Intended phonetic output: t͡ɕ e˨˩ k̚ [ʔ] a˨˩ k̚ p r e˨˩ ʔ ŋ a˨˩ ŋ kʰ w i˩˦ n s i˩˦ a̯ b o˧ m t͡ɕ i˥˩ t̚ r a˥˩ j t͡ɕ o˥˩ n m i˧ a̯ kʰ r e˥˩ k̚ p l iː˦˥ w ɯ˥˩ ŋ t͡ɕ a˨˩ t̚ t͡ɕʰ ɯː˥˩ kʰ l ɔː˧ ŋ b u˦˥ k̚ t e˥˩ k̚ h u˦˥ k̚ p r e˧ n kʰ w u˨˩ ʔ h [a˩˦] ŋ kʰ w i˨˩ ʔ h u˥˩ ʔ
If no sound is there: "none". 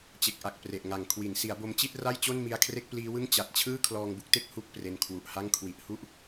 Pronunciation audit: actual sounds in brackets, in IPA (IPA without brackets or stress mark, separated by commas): ʔ, a˥˩